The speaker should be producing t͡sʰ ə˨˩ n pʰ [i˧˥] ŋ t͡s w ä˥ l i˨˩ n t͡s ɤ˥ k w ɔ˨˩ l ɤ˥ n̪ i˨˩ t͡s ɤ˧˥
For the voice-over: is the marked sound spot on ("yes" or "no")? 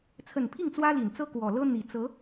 no